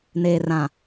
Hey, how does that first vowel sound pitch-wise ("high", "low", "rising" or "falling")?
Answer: low